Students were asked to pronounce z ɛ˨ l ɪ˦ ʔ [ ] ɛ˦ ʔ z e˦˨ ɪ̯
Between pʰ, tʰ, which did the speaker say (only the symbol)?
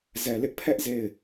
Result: pʰ